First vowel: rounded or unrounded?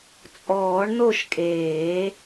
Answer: rounded